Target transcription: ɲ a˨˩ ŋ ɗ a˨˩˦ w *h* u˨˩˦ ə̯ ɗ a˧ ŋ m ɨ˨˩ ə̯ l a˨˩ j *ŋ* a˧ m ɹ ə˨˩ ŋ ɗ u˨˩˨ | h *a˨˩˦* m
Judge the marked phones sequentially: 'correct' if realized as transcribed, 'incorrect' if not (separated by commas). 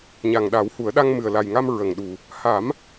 correct, correct, correct